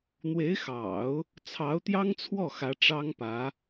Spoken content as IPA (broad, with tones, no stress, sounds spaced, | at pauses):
n̪ w e˧˥ ɪ̯ x ɑ̰˨˩˦ ʊ̯ | t͡sʰ ɑ˧˥ ʊ̯ t̪ j ɑ˥ ŋ t͡sʰ w ɔ˥˩ x ä˧˥ ʈ͡ʂ ɑ˥ ŋ p ä˧˥